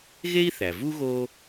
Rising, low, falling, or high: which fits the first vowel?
high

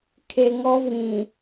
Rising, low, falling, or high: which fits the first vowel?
low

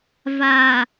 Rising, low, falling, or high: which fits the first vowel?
low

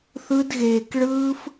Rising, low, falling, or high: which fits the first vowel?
high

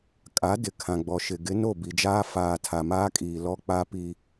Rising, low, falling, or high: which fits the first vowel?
rising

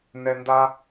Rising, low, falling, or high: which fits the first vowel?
low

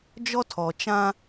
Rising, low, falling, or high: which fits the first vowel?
high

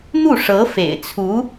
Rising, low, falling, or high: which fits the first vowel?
falling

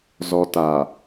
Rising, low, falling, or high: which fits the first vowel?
low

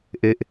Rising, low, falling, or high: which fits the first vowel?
falling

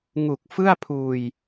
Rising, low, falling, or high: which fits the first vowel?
low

